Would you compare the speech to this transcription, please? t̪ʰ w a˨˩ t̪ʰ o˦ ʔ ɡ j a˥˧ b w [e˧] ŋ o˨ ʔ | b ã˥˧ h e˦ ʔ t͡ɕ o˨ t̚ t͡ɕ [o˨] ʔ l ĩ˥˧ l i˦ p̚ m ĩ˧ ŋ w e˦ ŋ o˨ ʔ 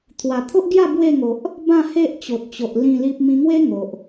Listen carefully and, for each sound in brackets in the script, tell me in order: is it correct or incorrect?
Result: incorrect, correct

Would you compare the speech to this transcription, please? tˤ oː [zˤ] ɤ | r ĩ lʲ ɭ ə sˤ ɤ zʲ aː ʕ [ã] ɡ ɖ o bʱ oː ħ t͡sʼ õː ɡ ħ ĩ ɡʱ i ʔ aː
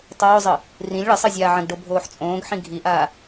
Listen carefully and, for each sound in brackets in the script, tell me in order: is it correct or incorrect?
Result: correct, incorrect

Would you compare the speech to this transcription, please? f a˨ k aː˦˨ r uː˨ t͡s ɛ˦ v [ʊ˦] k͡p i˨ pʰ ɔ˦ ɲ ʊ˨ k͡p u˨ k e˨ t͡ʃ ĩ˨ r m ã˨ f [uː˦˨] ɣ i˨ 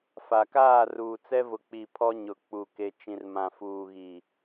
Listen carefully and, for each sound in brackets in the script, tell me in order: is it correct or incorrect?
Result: incorrect, incorrect

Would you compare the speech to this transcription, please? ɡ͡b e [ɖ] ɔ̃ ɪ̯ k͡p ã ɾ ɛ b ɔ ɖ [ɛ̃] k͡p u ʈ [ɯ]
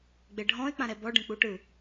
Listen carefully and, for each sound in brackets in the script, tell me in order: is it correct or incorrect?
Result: incorrect, correct, correct

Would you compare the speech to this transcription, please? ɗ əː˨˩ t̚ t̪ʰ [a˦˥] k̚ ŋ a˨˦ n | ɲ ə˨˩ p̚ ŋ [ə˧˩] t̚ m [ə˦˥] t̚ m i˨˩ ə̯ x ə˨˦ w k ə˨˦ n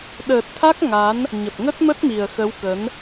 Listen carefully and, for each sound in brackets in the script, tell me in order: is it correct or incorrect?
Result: correct, incorrect, correct

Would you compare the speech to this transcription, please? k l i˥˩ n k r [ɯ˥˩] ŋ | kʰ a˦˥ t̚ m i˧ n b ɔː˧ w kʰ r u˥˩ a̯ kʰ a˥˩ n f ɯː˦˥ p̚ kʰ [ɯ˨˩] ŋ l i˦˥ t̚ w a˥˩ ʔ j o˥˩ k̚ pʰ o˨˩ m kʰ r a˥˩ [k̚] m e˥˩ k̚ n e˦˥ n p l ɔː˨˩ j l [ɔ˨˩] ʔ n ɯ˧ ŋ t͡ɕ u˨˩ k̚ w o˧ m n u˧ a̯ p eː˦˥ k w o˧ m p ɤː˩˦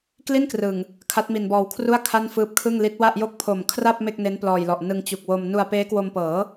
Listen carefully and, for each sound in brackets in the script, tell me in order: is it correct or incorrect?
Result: incorrect, incorrect, incorrect, correct

